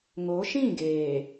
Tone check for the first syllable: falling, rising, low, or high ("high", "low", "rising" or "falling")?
rising